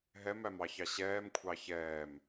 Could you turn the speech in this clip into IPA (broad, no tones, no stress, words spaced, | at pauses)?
ɦɛmæmɑçɑ ɕɛːmkʷʰɑ çɛːm